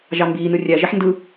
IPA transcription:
ʒ ɑ m b iː n ɯ rʲ æ ʒ e ħ n d ɯ

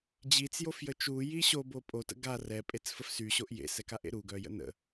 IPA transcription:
d͡ʑ i t͡s j o f j ə t͡ʃ u j i ɕ o b o pʼ o t ə̰ ɡ a r ɛ pʼ e t͡s f ə f s y ɕ o ʔ j ḛ s ɛ k a ʔ ḛ ɾ u ɡ œ j ə̰ n ə̰

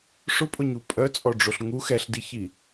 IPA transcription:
ʂ ʊ pʼ ʊ ɲ u pʼ œ t͡sʼ ɔ ɖ͡ʐ o ɬ ŋ u x ɛ ɬ d i ç i

